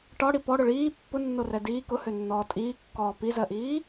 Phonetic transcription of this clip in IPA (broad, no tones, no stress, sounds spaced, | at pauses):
ʈ ɒ ɽ i p ɔ ɽ ʊ ɭ iː pː ʊ nː o r ɛ d iː k ʊ h ø nː ɔː tʼ iː kː ɔː p i z ɜ ʔ iː